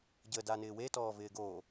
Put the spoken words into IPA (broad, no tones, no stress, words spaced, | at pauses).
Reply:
ɟə danɪːwe tɔːvɪːɡo